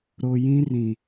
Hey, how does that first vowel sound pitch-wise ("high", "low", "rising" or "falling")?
low